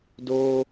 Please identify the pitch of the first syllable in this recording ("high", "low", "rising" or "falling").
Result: high